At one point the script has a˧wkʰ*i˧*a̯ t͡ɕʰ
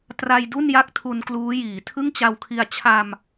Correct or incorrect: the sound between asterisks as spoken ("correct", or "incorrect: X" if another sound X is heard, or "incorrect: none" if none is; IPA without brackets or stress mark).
correct